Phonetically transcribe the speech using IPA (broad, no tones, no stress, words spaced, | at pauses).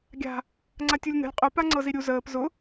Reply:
ɡʲa̤ | ŋ͡ǀatʲulʲnə̤lʲ qʼʊ paŋ͡ǀɤziɾʲu zəːp zʊ